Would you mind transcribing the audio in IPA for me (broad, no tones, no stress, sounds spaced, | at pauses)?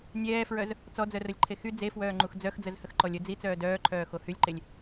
nʲ ɛː f ɹ œ z | t͡s ɔ d͡z œ r ə lʲ ǃʰ e x y d͡z e f w œː ŋ͡ǃ u x d͡z œ x d͡z ə z h ə x ǃ ɔ lʲ ə d͡z i t͡s œː d œː ǃʰ œː x o h y lʲ ǃ e lʲ